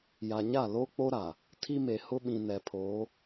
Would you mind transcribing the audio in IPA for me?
ja˨ɲa˦˨ lo˦k͡po˦ ɾa˨ | tʰi˦me˨hʊ˦ɓĩ˨ nɛ˨pʰoː˨˦

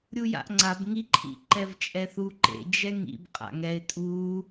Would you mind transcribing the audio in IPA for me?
ɾʲuja̰ʔŋ͡ǀab ŋi ǃʰḭǃɛvt͡ʃʼɛθu ǃḛ d͡ʒɛŋḭb qʼa̰ŋɛɪ̯ tʼu

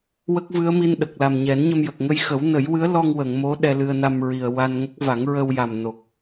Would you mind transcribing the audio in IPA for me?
wə˦˥k̚vɨ˧˥ə̯mi˧n ɗə˨˩k̚la˨˩mɲɛ˨˩˦n ɲə˧mjə˨˩k̚ ŋə˧jxə˨˩˦wnə˨˩˦jwɨ˧˥ə̯ lɔ˧ŋ wə˨˩˨ŋ mo˧˥ ɗɛ˧lɨ˧ə̯na˧mɹi˨˩ə̯ wa˧nŋə˦˥k̚ va˨˩˦ŋɹə˧wja˨˩mno˨˩k̚

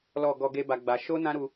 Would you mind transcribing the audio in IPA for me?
lɔ˨ ɡɔ˧ɡe˦ba˧ɡ͡ba˧ ʃo˦nã˦ ɾu˦

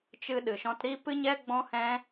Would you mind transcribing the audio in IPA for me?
t͡ʃɨ˧ɗɨ˨ʃɔ̃˧t ɾi˧pɨ˧ɲɛ˧ ɡ͡bɔ̃˧hɛ̃˧

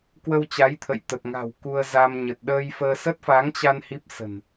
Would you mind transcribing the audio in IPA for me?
kwə˧wt͡ɕa˨˦jt̪ʰə̰˧˨j t̪ə˨˩t̚ŋa̤˨˩w ku˧ə̯za˧m ɲə˨˩t̚ɗəː˧jfəː˧ sə˦˥t̚fa˨˦ŋt͡ɕa˧n hi˦˥p̚sə̤˨˩n

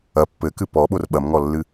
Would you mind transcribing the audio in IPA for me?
ɐ pːɘkɨ pɔɓor ɓɐmŋɔlːɨ

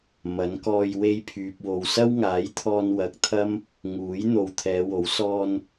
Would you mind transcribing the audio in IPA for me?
mɐ˨˥nkɔː˧j we˧jpʰyː˨p̚wo˨w sɐ˥wŋaː˨˥jt̪ʰɔː˧n wɐ˨k̚t̪ʰɐ˥m | ŋuː˨˥j n̪o˨˧w t̪ʰɛː˨˧wo˨˥w sɔː˧n

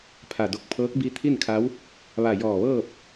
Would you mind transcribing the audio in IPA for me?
pʰa˧˩do˧k̚ pʰɤː˧˥k̚bi˧˥ t̪ʰi˥˨nkʰa˧˥w | ʋa˧˩jɔː˧˩ʋɤː˥˨p̚

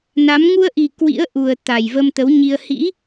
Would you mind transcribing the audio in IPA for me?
na˨˦m ŋu˧ə̯ʔi˨˩ kwḭ˧˥ə̯ʔu˨˩ə̯ t̪a˨˩jvə˧mt̪ə˨˦wɲi˧ə̯ hḭ˧˥

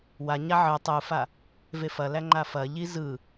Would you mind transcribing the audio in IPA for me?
waɲa ʕɯ tˤɯfa | vefɐlæ ŋ͡ǃafɐʎi zɯ

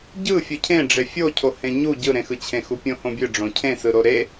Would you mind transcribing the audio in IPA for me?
ɟɯ fʲɯcʰẽ ɖ͡ʐefʲocʰohẽ ɲu ɟɯɾẽxɯt͡ɕʰẽ xupʲõhõbʲɯ ɖ͡ʐõcʰẽ sɯɾoɾe

